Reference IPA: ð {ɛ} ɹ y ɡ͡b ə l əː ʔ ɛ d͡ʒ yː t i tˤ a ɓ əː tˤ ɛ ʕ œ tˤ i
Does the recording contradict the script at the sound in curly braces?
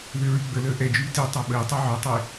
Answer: yes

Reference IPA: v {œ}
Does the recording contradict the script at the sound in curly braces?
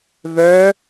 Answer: no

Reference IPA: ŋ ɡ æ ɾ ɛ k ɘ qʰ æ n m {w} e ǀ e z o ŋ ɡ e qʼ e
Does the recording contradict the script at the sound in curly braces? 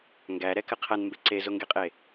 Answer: yes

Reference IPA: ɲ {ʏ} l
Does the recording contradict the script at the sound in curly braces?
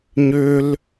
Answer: no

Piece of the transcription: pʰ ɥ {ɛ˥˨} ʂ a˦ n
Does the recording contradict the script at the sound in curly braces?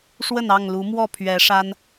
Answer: yes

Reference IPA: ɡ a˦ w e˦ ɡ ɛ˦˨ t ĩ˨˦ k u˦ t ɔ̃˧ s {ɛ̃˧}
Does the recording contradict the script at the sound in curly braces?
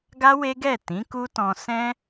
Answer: yes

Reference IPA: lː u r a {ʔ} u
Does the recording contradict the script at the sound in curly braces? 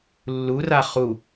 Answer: yes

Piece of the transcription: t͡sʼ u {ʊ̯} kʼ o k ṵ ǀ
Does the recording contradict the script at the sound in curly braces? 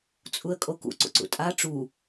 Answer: yes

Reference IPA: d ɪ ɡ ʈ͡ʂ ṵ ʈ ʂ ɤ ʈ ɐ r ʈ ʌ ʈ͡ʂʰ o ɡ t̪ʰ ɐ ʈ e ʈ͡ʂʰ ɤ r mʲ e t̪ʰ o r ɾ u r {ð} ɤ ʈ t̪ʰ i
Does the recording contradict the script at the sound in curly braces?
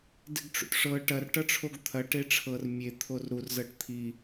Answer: yes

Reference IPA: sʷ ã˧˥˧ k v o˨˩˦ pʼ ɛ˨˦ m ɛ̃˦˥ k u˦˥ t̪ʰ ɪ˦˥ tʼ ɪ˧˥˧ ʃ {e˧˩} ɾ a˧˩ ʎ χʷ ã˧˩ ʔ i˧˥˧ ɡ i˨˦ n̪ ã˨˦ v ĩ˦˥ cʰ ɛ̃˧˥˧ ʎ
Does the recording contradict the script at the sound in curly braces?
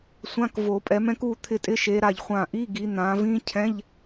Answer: yes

